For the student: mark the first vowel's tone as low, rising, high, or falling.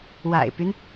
low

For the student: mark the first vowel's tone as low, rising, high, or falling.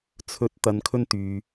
rising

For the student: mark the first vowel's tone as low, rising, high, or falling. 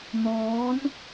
rising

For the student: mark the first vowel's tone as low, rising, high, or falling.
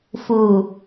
low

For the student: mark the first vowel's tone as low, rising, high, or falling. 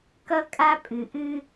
high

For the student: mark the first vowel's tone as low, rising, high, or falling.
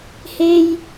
high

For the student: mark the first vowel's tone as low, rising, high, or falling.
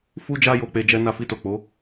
high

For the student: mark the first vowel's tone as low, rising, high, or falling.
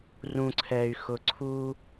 low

